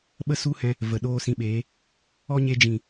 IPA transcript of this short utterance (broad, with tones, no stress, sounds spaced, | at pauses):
ɓ ə˦ s u˦ h ɛ̃˧ | v ə˨ ɗ oː˦ s ĩ˧ ɓ eː˨˦ | ɔ˦ ɲ e˧ d͡ʒ ĩ˨